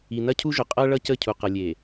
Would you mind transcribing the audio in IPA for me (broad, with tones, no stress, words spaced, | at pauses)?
i˨nɐ˦cʰu˦ʒʊ˨ qʼɐ˦ ɭʌ˦cə˦˨cʰu˨ qʌ˨lʲe˨